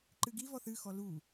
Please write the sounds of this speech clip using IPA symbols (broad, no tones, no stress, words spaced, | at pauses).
ǃɨɡivɔθ ɨxɔ lu